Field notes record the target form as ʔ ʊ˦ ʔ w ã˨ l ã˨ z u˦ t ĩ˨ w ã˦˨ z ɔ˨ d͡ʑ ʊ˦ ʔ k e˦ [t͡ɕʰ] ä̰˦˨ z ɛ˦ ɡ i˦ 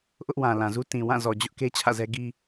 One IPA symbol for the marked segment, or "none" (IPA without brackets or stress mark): t͡ɕʰ